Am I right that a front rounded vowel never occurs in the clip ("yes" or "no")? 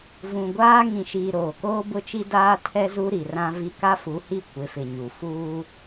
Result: yes